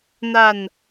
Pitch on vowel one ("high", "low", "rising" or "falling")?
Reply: low